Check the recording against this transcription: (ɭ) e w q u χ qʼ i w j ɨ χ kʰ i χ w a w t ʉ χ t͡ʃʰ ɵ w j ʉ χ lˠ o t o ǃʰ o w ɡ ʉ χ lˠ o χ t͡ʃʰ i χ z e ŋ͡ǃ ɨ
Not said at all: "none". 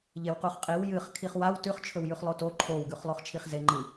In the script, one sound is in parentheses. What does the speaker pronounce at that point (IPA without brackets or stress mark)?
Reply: ʎ